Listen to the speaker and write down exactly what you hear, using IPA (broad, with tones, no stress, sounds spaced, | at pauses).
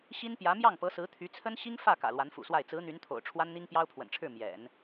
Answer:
ɕ i˥ n p j ä˧˥ m j ɑ˥˩ ŋ p ɤ˧˥ s ɹ̩˧˥ t̪ʰ y˧˥ t͡sʰ ə˥ n ɕ i˥ ŋ f ä˥˩ k ä̰˨˩ l w a˧˥ n f ṵ˨˩ s w a˥˩ ɪ̯ t͡s ɹ̩˧˥ n̪ y˧˥ n t̪ʰ o̰˨˩ ʊ̯ ʈ͡ʂʰ w a˥ n n̪ i˥ ŋ p j ɑ˥ ʊ̯ pʰ w ə̰˨˩ n ʈ͡ʂʰ ɻ̩˥˩ m j ɛ̰˨˩˦ n